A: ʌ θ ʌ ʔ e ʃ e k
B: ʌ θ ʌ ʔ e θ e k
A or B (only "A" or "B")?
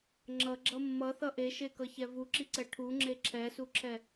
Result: A